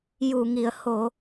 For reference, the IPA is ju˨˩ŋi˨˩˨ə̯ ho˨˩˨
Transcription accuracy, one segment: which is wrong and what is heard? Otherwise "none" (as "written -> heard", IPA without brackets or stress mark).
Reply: none